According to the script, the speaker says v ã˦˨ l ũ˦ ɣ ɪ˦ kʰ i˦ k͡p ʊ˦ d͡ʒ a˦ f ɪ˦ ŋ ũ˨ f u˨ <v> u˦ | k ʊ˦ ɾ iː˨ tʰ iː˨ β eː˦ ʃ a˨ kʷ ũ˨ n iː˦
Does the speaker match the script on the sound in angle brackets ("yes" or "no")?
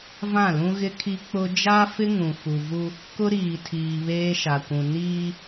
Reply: yes